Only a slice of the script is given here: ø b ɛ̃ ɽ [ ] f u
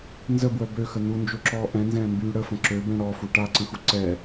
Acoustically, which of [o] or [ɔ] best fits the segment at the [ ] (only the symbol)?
ɔ